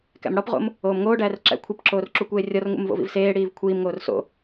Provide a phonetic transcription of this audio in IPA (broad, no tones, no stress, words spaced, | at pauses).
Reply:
kæ̰mɽɒpʁo̰m | oːmŋoːɖæːr ǁæ̰ kʷʰipǁoːr ǁukʷeːrʲɒrŋṵm vo̰vḭvseːɽiːv kʷʰiːmŋoːr so̰